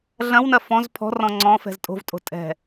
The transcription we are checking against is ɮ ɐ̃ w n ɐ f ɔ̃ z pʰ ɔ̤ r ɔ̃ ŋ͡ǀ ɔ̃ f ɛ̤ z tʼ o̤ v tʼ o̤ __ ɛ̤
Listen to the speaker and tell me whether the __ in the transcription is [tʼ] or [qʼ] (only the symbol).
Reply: tʼ